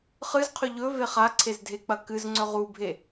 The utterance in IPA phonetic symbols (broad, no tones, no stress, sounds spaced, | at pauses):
χ ɨ z qʰ ɵ ʎ ɵ v e χ a ǀʰ e z dʱ e k͡p ɐ k ɨ z ŋ͡ǀ ɵ ʁ u bʱ e